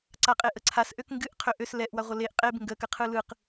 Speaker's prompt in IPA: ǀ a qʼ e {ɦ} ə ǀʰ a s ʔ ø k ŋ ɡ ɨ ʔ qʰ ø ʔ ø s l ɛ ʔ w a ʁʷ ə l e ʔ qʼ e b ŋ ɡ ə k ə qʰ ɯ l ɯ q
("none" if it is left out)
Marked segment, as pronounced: ʔ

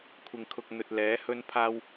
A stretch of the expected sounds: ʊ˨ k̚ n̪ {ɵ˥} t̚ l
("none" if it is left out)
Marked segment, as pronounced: ɵ˨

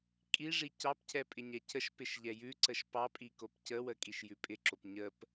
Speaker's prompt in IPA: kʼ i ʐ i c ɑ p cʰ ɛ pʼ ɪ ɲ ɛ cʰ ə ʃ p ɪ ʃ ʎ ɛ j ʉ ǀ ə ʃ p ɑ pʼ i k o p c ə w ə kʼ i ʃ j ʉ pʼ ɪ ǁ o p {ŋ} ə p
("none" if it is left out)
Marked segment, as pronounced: ɲ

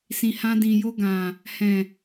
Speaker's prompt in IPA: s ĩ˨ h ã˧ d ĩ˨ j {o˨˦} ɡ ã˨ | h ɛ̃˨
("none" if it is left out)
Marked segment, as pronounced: o˧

